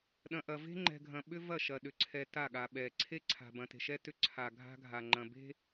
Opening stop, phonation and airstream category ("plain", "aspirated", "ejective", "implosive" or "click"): implosive